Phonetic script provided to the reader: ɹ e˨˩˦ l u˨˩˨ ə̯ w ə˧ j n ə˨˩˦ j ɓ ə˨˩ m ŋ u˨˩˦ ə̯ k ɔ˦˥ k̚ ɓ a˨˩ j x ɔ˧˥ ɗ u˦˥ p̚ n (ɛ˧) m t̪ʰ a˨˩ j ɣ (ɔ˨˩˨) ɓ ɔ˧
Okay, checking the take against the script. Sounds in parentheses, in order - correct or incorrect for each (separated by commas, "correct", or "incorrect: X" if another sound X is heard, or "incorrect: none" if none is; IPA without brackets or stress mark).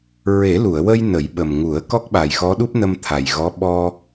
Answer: incorrect: ə˧, incorrect: ɔ˧˥